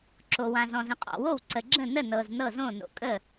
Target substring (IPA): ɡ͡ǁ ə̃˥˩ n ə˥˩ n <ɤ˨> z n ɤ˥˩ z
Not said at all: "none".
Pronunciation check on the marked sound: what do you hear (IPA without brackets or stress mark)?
ɤ˨